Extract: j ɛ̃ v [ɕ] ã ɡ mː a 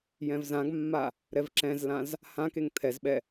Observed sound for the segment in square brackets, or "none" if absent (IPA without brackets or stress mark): z